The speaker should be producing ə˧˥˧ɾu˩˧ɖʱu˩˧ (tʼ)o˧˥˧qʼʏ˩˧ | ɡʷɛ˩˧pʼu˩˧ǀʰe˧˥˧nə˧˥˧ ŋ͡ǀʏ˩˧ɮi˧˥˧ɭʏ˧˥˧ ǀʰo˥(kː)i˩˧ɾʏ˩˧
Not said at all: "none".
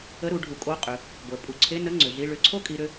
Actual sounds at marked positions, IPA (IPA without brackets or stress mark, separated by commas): kʼ, kʼ